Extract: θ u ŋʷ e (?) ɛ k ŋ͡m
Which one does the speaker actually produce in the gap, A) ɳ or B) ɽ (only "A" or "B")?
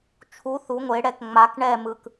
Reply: B